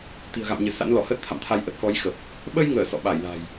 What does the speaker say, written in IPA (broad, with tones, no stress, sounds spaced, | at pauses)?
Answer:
t̪ i̤˨˩ ə̯ ɣ a̰˧˨ m ɲ ɨ˧˩ s a̰˧˥ n l ɔ˧˩ h əː˦˥ t̚ t̪ʰ a̰˧˨ m t̪ʰ a˧ j ʔ ə˨˩ t̚ k ɔ˨˦ j x ə˨˩ p̚ | ɓ ə˧ j ŋ əː˧˩ s ɔ̰˧˨ ɓ aː˧˩ j l a̤˨˩ j